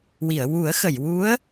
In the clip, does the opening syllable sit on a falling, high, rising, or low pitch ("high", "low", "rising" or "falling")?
low